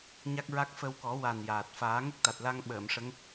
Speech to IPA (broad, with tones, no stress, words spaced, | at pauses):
ɲa˦˥k̚ɹa˦˥k̚ fə˧wkɔ˨˩˦wa˨˩n jaː˨˩t̚ faː˨˩˦ŋə˦˥k̚t̪a˨˩t̚la˧ŋ ɓəː˨˩˨mʂə˧˥ŋ